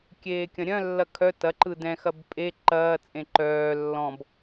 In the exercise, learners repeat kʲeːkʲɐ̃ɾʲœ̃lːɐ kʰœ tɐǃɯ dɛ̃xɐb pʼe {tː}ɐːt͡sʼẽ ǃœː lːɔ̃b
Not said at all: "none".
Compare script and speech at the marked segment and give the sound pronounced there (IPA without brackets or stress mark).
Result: ǃ